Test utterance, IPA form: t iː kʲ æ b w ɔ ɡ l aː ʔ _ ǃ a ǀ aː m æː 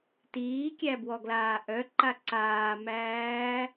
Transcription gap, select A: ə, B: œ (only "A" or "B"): B